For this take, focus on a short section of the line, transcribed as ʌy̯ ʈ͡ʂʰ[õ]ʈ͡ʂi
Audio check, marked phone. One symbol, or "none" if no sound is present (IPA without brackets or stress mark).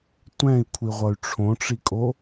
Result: õ